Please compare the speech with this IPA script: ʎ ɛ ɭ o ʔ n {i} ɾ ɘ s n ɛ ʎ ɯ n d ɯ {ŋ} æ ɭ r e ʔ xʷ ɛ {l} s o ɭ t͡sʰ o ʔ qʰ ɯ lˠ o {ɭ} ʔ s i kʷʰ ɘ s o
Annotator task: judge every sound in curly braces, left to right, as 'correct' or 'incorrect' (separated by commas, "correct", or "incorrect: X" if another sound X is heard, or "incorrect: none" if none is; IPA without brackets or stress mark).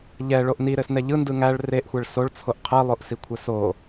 correct, correct, incorrect: ɭ, incorrect: none